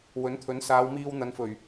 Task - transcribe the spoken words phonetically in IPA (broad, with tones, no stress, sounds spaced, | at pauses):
w ɵ˨˥ n t̪ʰ ɵ˨˥ n s aː˨˧ w m iː˧ w n̪ ɐ˨˧ n f ɵ˨˩ ɥ